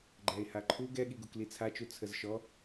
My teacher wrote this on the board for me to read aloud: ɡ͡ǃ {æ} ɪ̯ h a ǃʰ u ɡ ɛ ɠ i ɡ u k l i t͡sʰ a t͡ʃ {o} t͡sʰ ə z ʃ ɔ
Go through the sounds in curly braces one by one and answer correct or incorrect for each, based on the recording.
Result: correct, incorrect: u

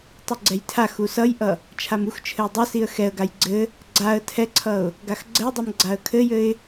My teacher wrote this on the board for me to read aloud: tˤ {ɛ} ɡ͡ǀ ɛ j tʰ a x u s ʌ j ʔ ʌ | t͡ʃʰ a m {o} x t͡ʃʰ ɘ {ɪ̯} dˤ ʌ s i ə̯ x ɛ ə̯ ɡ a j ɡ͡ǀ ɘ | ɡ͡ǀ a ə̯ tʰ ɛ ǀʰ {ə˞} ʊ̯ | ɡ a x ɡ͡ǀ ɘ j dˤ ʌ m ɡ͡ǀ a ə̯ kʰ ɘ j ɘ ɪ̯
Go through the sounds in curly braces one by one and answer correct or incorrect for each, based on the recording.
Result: incorrect: ɘ, incorrect: u, correct, incorrect: ʌ

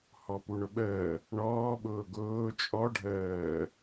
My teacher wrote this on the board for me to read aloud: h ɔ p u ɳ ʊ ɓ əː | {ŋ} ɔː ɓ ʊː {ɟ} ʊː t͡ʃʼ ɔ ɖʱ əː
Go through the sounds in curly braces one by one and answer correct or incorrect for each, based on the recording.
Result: incorrect: ɳ, incorrect: ɡ

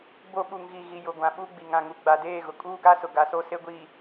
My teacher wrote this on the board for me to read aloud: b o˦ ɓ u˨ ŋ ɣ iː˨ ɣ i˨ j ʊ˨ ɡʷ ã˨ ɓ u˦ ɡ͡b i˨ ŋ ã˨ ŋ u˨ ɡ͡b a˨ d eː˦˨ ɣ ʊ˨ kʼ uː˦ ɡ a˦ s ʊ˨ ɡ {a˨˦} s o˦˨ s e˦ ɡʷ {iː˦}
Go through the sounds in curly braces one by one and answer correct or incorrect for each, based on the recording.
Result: correct, incorrect: iː˨

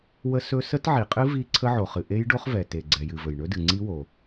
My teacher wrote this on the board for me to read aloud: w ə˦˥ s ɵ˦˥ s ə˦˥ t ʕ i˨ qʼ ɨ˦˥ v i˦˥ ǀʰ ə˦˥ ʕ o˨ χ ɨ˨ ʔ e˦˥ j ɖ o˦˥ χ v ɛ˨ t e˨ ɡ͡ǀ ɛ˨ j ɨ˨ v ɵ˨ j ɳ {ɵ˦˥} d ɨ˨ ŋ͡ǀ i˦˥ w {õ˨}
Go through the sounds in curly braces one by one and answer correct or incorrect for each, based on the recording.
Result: correct, incorrect: o˨

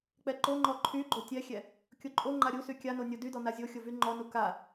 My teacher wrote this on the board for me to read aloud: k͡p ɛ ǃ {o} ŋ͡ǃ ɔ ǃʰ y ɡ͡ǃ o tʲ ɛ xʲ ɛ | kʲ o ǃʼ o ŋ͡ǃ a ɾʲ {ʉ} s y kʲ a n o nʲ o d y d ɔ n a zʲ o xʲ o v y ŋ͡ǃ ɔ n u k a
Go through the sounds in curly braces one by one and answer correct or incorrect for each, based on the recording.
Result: correct, incorrect: u

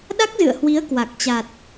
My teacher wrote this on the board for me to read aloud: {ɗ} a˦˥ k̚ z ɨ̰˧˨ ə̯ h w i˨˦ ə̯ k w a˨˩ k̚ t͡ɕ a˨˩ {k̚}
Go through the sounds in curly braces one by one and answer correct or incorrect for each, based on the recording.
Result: correct, incorrect: t̚

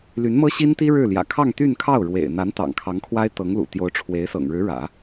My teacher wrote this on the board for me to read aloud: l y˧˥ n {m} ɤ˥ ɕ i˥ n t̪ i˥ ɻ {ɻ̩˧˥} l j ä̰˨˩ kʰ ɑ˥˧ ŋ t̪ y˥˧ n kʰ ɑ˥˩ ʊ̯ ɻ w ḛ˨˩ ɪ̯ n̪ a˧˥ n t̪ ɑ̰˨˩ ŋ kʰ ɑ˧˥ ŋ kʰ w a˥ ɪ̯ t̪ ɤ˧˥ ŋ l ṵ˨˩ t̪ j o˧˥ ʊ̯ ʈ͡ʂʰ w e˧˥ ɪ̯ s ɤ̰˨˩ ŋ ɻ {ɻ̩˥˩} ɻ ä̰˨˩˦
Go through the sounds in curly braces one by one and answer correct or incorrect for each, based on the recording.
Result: correct, incorrect: ɻ̩˥˩, incorrect: ɻ̩˧˥

